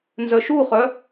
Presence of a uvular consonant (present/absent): present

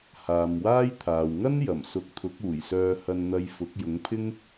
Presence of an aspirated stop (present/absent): present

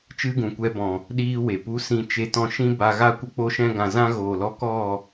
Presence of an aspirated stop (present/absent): absent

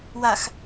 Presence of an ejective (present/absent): absent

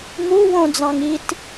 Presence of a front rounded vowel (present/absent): absent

